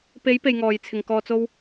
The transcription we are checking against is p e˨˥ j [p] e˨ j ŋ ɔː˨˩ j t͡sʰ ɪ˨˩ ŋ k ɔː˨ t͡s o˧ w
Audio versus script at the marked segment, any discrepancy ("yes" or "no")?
no